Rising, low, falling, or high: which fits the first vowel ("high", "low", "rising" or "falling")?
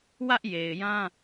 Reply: high